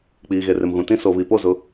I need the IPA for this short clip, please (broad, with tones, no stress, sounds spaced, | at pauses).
k͡p iː˨ ɣ e˨ r ɪ˨ m ɣ ũ˨ t ĩ˦ s o˨ β i˨ p o˦˨ z ʊ˦